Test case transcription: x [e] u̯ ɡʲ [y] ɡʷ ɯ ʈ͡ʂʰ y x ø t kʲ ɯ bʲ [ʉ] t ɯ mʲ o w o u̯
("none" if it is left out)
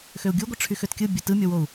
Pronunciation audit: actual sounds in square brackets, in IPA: ø, u, ø

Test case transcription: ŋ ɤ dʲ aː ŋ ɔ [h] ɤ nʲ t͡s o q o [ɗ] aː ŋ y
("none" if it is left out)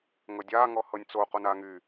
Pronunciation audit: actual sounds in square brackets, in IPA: h, n

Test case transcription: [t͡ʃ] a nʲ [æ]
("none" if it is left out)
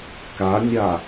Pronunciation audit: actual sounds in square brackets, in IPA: k, a

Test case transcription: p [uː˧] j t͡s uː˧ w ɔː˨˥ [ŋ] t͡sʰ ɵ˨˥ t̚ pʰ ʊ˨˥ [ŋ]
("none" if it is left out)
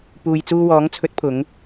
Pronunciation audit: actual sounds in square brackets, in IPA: uː˨, ŋ, ŋ

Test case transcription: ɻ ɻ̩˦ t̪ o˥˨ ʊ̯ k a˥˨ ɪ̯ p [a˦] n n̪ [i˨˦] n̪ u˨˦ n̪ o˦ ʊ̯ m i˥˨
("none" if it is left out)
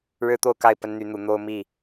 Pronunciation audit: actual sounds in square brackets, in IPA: ə˦, y˨˦

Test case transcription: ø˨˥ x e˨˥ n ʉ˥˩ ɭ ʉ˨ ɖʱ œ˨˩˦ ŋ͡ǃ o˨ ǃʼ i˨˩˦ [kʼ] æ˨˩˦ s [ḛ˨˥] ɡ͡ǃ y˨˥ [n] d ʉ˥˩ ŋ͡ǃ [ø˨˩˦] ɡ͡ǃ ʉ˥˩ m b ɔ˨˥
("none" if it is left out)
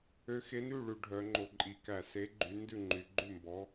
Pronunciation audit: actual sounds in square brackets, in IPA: k, e˨˥, n, y˨˩˦

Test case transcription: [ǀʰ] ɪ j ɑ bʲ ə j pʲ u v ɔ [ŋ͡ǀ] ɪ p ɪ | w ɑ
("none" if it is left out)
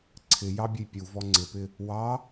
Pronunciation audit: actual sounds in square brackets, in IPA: ǀʰ, ŋ͡ǀ

